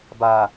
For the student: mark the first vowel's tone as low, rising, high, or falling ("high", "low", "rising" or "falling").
low